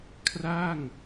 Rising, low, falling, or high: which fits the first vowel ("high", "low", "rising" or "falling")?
falling